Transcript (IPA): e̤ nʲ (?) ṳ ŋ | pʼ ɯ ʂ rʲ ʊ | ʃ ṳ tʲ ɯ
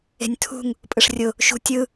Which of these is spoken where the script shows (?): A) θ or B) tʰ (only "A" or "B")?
B